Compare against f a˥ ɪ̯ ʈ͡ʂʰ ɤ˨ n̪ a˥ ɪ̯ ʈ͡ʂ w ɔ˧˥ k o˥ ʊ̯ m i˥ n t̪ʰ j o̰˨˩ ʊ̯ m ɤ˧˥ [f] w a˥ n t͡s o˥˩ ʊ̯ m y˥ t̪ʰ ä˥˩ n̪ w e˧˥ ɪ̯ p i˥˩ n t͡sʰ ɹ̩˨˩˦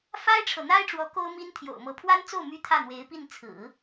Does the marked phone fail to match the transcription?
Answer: yes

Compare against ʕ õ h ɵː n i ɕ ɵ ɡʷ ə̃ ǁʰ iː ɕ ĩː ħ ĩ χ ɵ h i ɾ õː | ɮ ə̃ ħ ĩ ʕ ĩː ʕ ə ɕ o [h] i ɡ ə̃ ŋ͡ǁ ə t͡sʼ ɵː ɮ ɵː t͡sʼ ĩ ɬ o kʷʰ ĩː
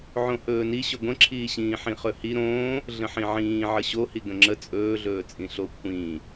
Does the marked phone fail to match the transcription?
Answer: no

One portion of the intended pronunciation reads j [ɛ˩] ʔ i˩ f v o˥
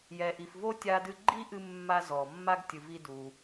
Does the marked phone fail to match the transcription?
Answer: no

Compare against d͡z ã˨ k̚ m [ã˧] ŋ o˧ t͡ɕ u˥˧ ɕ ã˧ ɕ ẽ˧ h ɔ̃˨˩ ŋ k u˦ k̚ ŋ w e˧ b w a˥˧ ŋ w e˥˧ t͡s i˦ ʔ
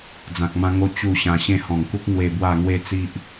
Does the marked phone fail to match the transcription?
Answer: no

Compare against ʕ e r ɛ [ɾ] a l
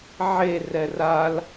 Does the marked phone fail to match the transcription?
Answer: yes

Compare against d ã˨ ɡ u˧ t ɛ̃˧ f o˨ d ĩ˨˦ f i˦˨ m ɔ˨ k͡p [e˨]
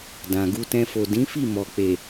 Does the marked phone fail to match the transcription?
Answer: no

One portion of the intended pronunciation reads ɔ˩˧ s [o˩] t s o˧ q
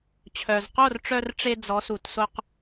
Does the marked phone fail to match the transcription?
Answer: yes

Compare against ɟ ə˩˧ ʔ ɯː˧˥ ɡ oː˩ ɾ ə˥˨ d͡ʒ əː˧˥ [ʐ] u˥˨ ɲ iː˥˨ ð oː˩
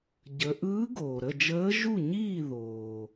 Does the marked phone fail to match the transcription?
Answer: yes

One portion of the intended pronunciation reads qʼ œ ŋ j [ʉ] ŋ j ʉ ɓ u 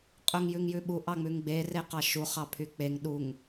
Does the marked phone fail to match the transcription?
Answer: no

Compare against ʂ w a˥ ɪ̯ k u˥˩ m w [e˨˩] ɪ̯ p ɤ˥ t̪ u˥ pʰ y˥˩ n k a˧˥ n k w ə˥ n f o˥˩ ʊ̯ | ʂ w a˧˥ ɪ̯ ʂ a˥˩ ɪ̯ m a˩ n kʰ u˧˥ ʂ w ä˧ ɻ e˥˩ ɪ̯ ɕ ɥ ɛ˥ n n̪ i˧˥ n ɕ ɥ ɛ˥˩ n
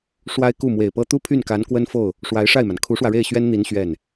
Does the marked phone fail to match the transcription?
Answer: no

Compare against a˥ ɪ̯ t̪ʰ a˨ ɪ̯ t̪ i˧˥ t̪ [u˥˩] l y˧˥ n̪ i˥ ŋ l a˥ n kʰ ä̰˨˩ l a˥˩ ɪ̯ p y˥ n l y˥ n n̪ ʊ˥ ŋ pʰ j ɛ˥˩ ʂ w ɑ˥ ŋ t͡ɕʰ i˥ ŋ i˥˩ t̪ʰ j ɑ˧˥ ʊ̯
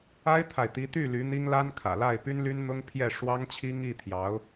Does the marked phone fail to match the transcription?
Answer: yes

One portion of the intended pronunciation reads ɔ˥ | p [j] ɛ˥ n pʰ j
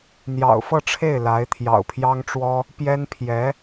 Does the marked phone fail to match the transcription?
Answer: no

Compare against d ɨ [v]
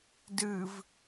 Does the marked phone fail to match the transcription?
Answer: no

